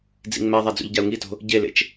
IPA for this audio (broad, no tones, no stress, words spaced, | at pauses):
d͡zḭŋmɛðˤa d͡zṵʎɟau̯ŋito̤ | ɟelḛt͡ʃ